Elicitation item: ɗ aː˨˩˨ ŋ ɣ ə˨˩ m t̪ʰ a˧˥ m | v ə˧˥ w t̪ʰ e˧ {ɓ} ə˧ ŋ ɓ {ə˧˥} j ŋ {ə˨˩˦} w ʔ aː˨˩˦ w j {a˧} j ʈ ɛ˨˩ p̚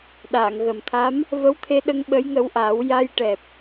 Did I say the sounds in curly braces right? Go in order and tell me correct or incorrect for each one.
incorrect, correct, incorrect, correct

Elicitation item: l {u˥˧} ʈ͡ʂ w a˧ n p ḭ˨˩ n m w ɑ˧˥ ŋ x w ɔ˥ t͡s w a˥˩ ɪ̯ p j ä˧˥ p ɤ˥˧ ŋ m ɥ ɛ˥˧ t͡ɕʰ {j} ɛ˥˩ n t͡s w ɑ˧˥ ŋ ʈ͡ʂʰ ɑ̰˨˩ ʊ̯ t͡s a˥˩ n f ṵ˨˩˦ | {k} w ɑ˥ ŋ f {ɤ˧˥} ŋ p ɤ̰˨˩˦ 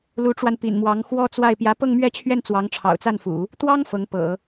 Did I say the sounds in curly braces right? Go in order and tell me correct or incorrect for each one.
incorrect, incorrect, incorrect, correct

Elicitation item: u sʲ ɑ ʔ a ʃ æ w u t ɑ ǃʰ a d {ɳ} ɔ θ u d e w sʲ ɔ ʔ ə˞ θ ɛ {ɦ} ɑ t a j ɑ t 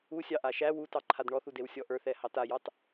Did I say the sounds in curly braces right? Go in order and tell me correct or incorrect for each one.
correct, incorrect

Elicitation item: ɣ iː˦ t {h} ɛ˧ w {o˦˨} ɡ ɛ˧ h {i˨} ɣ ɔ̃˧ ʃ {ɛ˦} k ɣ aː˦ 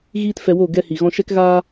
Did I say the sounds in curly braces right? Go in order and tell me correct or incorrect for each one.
incorrect, correct, correct, correct

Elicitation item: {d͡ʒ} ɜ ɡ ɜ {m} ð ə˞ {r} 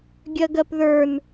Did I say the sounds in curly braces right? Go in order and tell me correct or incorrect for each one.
incorrect, incorrect, incorrect

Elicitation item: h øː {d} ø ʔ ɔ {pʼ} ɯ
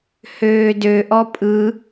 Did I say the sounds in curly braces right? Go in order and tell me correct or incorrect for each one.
correct, correct

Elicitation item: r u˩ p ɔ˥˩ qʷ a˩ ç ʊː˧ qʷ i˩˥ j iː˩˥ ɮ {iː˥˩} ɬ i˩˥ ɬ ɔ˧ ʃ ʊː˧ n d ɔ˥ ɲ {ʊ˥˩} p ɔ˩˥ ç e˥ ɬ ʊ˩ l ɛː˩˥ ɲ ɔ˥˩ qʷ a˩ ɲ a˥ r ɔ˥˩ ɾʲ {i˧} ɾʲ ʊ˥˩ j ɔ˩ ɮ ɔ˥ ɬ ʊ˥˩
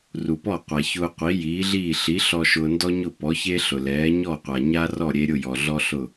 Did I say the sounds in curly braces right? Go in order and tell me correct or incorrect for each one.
correct, correct, incorrect

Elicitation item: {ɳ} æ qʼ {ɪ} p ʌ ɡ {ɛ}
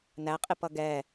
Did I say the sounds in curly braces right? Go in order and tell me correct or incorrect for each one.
incorrect, correct, correct

